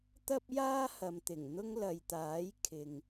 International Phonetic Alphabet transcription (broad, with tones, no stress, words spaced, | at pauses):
t̪ɐ˥p̚jaː˥hɐ˨mt̪ɪ˨˩ŋ n̪ʊ˥ŋlɐ˨jt̪aː˨˥j kʰɪ˨ŋ